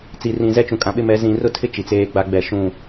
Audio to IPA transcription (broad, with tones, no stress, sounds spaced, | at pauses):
t͡s i˨ r ĩ˨ z ɛ˦ t͡ʃ ũ˨ kʼ ã˨ ɓ ɪ˦ m ɛ˨˦ z ĩ˨ r ʊ˦ tʰ ɪ˦ t͡ʃ i˨ t͡s eː˦ ɡ͡b a˦ ɡ͡b ɛ˦˨ ʃ ũ˦˨